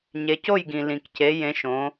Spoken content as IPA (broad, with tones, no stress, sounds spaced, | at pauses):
ɲ e˩˧ c o˥˩ j ɡ ĩ˩ l ĩ˩ k c e˩˧ j ẽ˩˧ ʃ õ˩˧